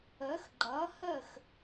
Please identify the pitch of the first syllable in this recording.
rising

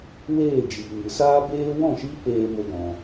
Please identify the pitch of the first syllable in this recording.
falling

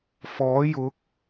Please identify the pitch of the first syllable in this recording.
rising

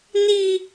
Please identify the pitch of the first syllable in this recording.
high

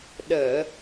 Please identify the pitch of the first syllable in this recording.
low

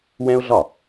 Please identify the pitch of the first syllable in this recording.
high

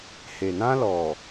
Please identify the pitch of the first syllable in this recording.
low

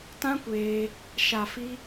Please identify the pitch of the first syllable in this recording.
high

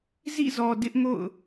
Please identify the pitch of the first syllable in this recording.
falling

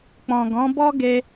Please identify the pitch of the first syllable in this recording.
low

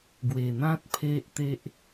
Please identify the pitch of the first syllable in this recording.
low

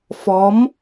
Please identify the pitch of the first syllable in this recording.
rising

